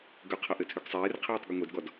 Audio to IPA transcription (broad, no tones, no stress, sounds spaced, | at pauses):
ɡ ʏ qʰ ʌ ʔ ɘ tʰ ʏ ɡ sˤ eː r qʰ eː tˤ ɡ ʏ ŋʷ e d ɡ ɔ d